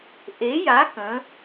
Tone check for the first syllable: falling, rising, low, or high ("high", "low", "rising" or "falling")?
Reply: rising